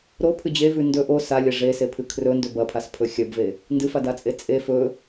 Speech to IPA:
ɾ o pʰ ɨ d͡ʑ e v ʉ n d ɵ ʔ o s a lʲ ɐ ʐ e s e pʰ ɨ kʰ r ɵ n d ɵ b ɐ pʰ a s pʰ ɵ xʲ ɐ b v e | n d ɨ f a d a t͡sʼ e t͡sʼ e f ɵ

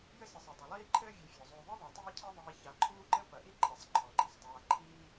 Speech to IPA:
j ɘ˥ s ɘ˨ sˤ ɘ˩ dˤ ɘ˩ lˠ iː˦ ǃʰ ɘː˦ vʲ e˨ fʲ ɔ˩ zˤ uː˨ ðˤ ɨ˥ ðˤ ɛ˩ tˤ iː˦ cʰ ɛ˦ ðˤ iː˨ ç a˨ ǃʰ uː˥ ǃ ɘ˥ p ɐ˩ ʔ i˥ ǃʼ ɛ˩ sˤ ǃʰ ɔ˩ ɡ͡ǃ i˥ sˤ dˤ aː˨ ǃʰ iː˦

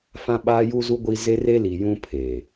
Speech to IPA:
f ã˦ ɓ aː˦ j u˦ z u˦ ɡʷ i˦ z e˦ r e˦ l i˨ j ũ˦ pʰ e˨

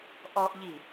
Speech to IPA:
ʔ ɔ ʔ ʎ i

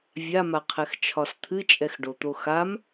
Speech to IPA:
vʲ a m a qʰ ɛ x t͡ʃʰ ɒ s t̪ʰ ɨ t͡ʃʼ ɛ x ɖ o t̪ o x a m

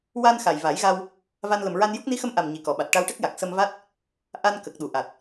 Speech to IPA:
w a˧ n x a˨˩ j v a˨˩˦ j ɣ a˧ w | v a˧ n l ə˨˩ m ɹ a˧ n j u˦˥ k̚ n i˧˥ x ə˧ m ʔ a˨˩ m ɲ i˨˩ k ɔ˨˩˨ ɓ a˨˩ t̚ ʈ a˧ w ʈ ə˦˥ k̚ j a˨˩ k̚ s ə˧ m v a˦˥ t̚ | ʔ a˧ n k ə˨˩ k̚ ɗ u˨˩˨ ʔ a˨˩ t̚

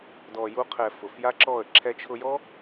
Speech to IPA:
d ɔ˨ j u˧ qʰ ɛ˨ f ʊ˨ f j a˦ ǁ ɔ˦˨ ə̯ ǁʰ ɛ˧ t͡ʃʰ ʊ˧ j ɔ˦

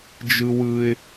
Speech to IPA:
d͡ʒ ɯ˦ w ɯ˦ ɪ̯

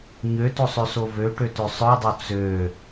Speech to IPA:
ɲ ø t o sˤ ø s o v ø ʈ ø t ø sˤ œ dˤ o t͡s ø

